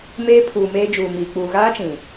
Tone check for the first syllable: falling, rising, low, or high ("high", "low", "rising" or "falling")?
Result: high